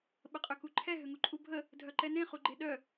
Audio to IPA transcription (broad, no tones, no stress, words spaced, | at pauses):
ɓəqʼøkuǃʰɛ ɦʏŋuǃʼubʱə | dʱœǃɛnẽ χuɡ͡ǃeɗœ